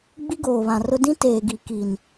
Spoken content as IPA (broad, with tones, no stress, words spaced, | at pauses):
ɡ͡bi˦ɡoː˨βã˨rʊ˦ dĩ˦ teː˨ɡi˨ ki˨n